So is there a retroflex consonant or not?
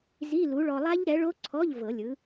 yes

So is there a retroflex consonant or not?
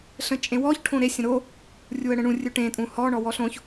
yes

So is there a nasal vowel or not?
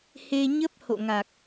no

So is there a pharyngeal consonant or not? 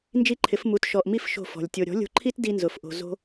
no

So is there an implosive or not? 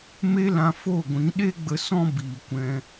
yes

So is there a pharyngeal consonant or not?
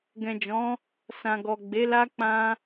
no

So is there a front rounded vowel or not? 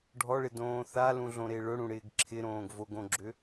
yes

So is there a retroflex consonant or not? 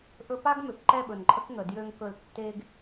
no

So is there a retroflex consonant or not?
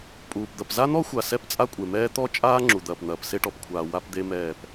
yes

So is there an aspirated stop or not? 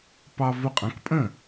no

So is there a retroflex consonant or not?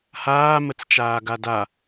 no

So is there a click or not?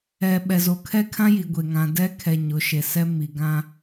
no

